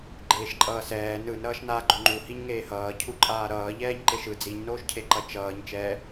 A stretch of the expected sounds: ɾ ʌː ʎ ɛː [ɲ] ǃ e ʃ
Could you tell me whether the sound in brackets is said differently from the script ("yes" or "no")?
no